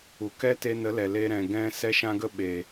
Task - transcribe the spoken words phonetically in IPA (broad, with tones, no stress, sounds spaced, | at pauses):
u˨ k ɛ˦ t e˧ n ə˨˦ l ɛ˨ l e˦ ɾ ɛ̃˨ ɡ ɛ̃˦ s ɛ˦ ʃ ã˦ ɡ ə˦ ɓ e˨